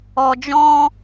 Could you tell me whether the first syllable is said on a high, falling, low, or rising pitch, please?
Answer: low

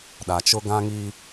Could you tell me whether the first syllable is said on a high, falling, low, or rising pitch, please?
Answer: low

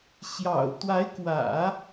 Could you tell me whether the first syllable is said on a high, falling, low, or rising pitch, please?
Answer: low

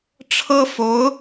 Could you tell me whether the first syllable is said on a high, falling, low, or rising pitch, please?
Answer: high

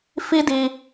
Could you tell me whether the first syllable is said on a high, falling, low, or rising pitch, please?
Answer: high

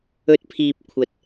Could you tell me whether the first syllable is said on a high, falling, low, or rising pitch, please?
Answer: rising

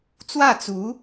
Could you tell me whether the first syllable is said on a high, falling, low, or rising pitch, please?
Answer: falling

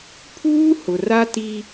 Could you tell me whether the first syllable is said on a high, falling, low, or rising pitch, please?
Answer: high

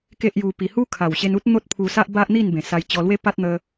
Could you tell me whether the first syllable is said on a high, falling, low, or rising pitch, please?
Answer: high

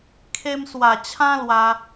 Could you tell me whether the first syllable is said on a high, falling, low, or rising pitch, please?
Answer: high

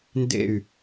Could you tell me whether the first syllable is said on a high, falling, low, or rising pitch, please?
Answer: falling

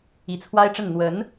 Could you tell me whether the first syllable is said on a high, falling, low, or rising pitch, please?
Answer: rising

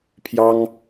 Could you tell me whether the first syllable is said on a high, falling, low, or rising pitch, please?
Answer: high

